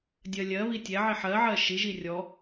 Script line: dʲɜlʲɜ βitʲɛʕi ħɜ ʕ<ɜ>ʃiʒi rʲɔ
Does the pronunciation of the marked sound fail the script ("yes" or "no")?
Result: no